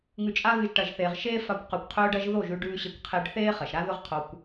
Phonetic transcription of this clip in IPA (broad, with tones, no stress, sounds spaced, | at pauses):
ŋ ʉ˧ t͡ʃʼ a˦ ɣ ɨ˧ ʒ ʈ ɐ˨ ʒ θ eː˨ ʁ ʃ eː˦ f a˧ kʷ q ʉ˨ kʷ qʰ ɵː˧ ɖ ɐ˧ ʒ ð o˦˨ ʒ ʉ˧ ɖ ʉː˧ ɕ e˧ kʷ qʰ e˦ ɖ θ eː˦ χ ɐ˨ ʃ ɾ a˦ ð ɵ˦ ʁ qʰ o˧ kʷ